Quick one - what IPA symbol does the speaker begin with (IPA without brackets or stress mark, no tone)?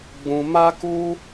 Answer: ɡ͡b